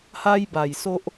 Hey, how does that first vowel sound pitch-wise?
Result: high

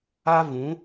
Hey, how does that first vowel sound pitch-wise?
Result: high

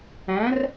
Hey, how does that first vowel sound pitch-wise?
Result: rising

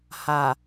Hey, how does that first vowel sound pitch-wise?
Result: low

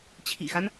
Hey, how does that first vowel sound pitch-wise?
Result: low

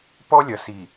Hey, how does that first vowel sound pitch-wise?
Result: high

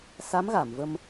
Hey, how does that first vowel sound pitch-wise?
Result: rising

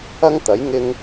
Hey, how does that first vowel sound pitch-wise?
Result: high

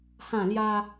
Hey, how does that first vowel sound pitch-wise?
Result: falling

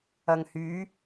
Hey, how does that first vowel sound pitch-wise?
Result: low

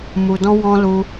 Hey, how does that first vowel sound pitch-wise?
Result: low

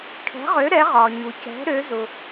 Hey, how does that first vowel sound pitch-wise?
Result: rising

